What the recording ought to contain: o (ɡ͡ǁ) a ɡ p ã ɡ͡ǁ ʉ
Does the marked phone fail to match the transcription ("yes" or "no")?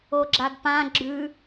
no